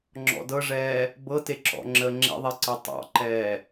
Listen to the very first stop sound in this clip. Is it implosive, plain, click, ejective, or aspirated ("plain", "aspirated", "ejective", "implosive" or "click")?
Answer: click